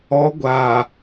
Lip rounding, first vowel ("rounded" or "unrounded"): rounded